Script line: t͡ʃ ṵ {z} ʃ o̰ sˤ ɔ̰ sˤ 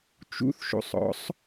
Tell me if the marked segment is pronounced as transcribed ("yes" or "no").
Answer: no